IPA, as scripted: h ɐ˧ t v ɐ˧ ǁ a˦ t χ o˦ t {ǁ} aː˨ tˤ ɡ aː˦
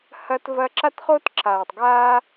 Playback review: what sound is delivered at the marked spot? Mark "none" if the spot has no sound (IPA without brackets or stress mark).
ǁ